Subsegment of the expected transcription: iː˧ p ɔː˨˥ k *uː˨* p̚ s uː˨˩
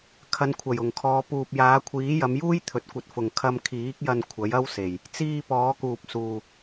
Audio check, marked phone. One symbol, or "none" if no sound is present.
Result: uː˨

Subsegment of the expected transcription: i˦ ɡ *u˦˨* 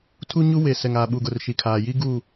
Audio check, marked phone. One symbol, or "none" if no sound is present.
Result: u˦˨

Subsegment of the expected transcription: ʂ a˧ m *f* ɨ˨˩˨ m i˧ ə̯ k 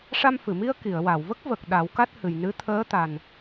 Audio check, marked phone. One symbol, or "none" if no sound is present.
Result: f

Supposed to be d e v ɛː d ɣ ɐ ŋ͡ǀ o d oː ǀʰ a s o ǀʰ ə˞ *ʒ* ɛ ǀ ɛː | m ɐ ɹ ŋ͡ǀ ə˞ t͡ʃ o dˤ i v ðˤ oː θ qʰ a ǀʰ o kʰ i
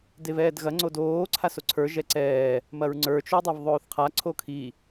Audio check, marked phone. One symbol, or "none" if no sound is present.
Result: ʒ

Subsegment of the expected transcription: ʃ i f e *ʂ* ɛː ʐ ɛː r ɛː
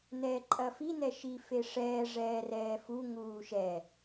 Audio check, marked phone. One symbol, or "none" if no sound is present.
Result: ʂ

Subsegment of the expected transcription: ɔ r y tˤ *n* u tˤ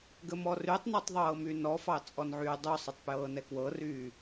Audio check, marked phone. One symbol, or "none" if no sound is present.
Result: n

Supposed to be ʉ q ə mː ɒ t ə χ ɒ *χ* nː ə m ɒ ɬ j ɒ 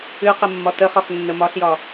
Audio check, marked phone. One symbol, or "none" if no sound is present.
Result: χ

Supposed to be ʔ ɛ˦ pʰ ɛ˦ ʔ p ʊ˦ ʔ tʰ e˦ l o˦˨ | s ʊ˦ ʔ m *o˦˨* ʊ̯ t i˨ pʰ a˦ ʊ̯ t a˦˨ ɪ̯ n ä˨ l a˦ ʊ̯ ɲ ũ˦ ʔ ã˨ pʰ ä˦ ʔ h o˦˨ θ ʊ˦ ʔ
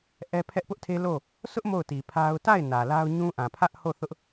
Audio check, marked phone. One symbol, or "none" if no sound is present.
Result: o˦˨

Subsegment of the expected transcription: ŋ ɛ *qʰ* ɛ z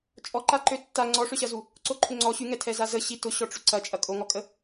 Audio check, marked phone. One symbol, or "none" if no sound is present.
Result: tʰ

